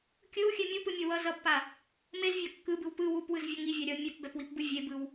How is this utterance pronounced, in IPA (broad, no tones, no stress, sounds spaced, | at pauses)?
kʲ ɯ w xʲ ɛ mʲ u p ɯ mʲ ʌ w ʌ z ʌ b p a | m e z vʲ a kː ɯ b ɯ w p ɯ w u p w ɯ z vʲ ʌ ŋ i vʲ a ɾʲ ʌ mʲ ɛ p b ɛ p w i p b ɯ vʲ e b ɯ w